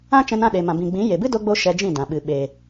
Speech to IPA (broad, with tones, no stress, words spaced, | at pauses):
ã˦t͡ʃɛ̃˧n ã˦˨ɗe˨mã˨ bĩ˨ɡ͡bĩ˨˦ je˨bɨ˦do˧ ɡ͡bo˦ʃɛ˧d͡ʒĩ˦˨ dã˨ɓɨ˨ ɓe˨